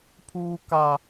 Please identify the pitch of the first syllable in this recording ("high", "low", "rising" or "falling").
low